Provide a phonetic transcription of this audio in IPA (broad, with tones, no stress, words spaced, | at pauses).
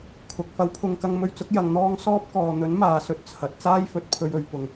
kʰʊ˨k̚ fɐ˨˧wpʰʊ˨ŋkɐ˧ŋ mɵ˧ɥt͡sʊ˨˥k̚ jɐ˨˧ŋn̪ɔː˥ŋ sɔː˥p̚kɔː˨ n̪ɵ˨˥nmaː˨sɵ˧t̚ t͡sʰɐ˨˥t̚ t͡saː˥jfɵ˨t̚ pʰɵ˧ɥɵ˨ɥ pʊ˨˩ŋ